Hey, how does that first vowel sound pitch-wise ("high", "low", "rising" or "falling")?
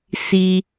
high